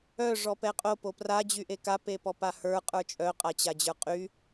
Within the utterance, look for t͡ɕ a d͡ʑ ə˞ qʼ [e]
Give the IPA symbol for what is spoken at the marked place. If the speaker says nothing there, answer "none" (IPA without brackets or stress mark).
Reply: y